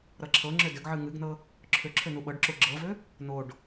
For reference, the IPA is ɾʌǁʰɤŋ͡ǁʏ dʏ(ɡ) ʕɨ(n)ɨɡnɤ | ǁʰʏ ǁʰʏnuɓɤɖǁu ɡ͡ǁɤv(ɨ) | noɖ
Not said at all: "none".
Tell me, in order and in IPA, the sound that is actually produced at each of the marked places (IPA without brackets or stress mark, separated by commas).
ɡ, ŋ, ʏ